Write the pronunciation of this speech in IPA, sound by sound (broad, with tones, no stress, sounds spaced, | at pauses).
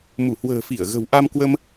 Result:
m u˧˩ h w ə̤ː˨˩ f i˧˩ ə̯ ɣ ə̤˨˩ w ʔ a˧ m k w ə˧ m